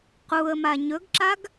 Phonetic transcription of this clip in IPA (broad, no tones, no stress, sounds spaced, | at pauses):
q u ə̯ m a ɲ ɵ ɡ ǁ a ɡ